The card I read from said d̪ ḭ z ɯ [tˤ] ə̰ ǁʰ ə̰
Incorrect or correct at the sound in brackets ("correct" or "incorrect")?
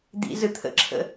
incorrect